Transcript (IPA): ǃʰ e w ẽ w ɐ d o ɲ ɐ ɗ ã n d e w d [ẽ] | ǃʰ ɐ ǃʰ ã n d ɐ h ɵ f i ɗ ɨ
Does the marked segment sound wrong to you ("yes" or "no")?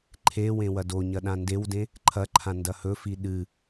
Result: no